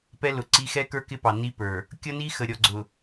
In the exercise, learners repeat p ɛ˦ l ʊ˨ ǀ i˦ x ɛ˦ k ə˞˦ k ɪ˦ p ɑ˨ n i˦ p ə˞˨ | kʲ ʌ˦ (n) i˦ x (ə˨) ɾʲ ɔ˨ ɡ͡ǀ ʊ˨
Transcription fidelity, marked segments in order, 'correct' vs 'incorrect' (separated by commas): correct, correct